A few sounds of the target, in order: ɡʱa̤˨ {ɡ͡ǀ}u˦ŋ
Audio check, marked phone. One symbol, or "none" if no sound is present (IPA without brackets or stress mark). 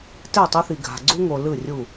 ɡ͡ǀ